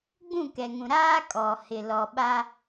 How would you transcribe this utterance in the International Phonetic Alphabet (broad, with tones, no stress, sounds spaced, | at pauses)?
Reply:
ɡ͡b ũ˦˨ k ɛ˨ ŋ ũ˨ ɾ aː˦ kʼ ɔ˨ h ɪ˨ l ɔ˨ ɓ a˦